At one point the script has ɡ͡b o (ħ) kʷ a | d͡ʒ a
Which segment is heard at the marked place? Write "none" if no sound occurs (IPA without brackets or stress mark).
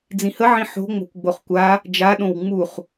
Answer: χ